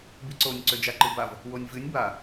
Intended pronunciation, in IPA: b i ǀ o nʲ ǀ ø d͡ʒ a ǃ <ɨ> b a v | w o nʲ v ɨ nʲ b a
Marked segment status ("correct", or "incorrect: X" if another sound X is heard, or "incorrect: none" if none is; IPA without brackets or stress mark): correct